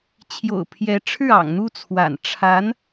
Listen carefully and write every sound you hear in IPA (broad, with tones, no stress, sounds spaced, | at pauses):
t͡ɕʰ j o̰˨˩ ʊ̯ pʰ j ɛ˧˥ ʈ͡ʂʰ ɻ̩˥˩ ɑ̰˨˩ ŋ n̪ u˥˩ t͡sʰ w a̰˨˩ n ʈ͡ʂʰ a˧˥ n